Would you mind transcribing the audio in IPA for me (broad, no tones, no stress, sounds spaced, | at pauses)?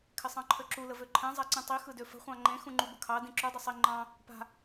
kʰ ɪ sˤ ɑ̃ ǃʰ ø ǁ u l ə v ø ǃʰ ɛ̃ zˤ a ǀ ĩ tˤ i x ɯ d ø f ə̤ χʷ ɑ̃ ŋ͡ǃ ẽ x ũ ŋ͡ǃ u b ə kʰ ɑ d ĩ ǁ u dˤ ɪ sˤ i ŋ͡ǃ ɑ̃ | p a̤